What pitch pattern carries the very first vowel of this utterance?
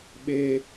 low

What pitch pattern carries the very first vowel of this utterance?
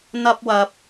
high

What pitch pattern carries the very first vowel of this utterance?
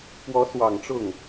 rising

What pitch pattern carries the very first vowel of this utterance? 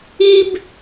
high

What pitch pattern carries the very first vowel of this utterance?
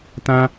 high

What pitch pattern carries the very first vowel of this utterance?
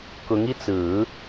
rising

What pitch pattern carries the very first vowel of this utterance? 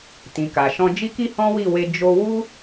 low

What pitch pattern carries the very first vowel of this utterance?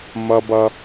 high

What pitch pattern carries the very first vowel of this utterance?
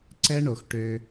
high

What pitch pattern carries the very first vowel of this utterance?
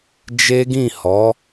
high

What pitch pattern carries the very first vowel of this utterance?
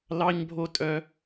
high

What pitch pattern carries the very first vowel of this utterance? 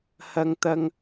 high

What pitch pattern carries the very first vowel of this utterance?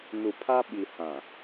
low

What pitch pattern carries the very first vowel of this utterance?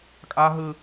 high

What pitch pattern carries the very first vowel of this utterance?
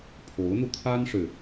rising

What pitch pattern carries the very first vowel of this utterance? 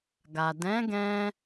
low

